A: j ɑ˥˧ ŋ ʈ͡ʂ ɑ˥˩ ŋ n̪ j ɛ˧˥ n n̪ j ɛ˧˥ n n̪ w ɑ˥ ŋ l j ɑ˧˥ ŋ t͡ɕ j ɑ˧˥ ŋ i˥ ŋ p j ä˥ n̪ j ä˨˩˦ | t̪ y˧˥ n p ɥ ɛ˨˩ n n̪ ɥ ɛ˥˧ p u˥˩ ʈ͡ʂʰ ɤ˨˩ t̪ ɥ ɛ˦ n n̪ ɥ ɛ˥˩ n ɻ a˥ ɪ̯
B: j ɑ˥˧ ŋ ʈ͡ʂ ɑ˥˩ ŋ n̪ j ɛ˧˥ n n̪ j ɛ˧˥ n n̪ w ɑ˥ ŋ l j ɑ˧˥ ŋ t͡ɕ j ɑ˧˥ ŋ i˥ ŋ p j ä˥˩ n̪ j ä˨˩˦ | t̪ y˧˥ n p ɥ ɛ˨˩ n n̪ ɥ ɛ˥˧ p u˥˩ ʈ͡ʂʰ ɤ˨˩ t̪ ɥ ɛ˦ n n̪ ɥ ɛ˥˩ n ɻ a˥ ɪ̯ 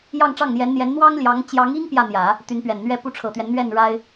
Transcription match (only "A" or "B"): B